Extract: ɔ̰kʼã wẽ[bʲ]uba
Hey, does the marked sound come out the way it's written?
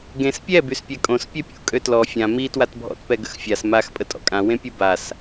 no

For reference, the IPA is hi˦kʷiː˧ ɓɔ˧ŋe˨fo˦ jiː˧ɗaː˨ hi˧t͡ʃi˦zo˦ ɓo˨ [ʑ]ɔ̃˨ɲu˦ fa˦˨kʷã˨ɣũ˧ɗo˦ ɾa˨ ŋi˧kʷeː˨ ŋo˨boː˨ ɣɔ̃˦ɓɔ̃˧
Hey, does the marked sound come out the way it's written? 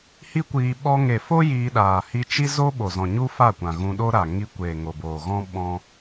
no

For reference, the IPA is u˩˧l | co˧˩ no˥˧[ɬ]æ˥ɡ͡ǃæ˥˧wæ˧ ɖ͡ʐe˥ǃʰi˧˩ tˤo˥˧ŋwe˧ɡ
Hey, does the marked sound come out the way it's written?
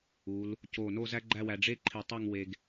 no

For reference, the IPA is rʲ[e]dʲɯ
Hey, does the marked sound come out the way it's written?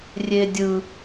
yes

